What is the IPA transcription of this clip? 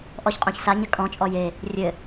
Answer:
ʔ ɔ ç qʼ õ ç s a ɲ ɘ kʼ ɔ̃ t͡ʃʼ ɔ j e | rʲ ɘ

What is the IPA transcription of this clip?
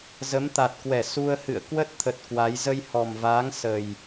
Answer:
z ə˨˦ m t̪ a˨˩ t̚ k w ɛ˧˩ s u˧ ə̯ h ɨ̰˧˨ ə̯ k w ə˦˥ t̚ t̪ʰ ə˨˩ t̚ k w a˨˦ j z ə˧ j h ɔ˨˩ m v aː˨˦ ŋ s ə˨˩ j

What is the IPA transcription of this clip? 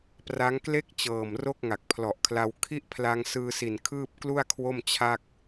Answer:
p r a˦˥ ŋ k l e˥˩ k̚ t͡ɕ ɤː˨˩ m r o˥˩ k̚ ŋ a˨˩ k̚ pʰ l ɔ˨˩ ʔ kʰ l a˧ w kʰ i˥˩ ʔ pʰ l a˧ ŋ s ɯː˧ s i˨˩ n kʰ ɯː˥˩ p̚ k l u˥˩ a̯ kʰ w o˥˩ m t͡ɕʰ a˥˩ k̚

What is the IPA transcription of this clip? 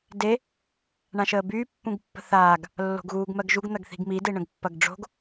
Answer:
d e | ɳ ã ʃ əː b yː pː ũ ɡ pː ə̤ θ aː ɡ | lː o̤ ɡ ɣ uː ɡ m ɜ ɡ ʒ u ɡ n̪ ɐ ɡ θ i̤ ɡ m i d e ɳ ə̃ ɡ pː ɐ ɡ ɖ͡ʐ o̤ ɡ

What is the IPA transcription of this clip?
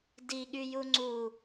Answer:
d i ɠ y j u ŋ͡ǀ u

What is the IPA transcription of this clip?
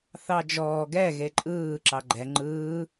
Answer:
θ ɑ d͡ʒ ɔː ɡ ɛ ɣ e ǃʼ ɯː ǁ ɑ ɡ͡ǃ ɛ ŋ͡ǃ ɯː

